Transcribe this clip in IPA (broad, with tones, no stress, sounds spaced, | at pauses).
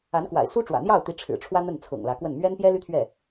a˧˥ n k w a̰˨˩ ɪ̯ s u˥ ʈ͡ʂ w ä̰˨˩ n̪ j ɑ˥˩ ʊ̯ t̪ i˧˥ ʈ͡ʂʰ ɻ̩˨˩ ʈ͡ʂʰ w ä˥ n̪ ə˥˩ n t͡sʰ ʊ̰˨˩ ŋ l ä˧˥ k w ə˥˩ n m ɥ ɛ˥ n p j ɛ˥ l y˥ t̪ʰ ɥ ɛ˥˩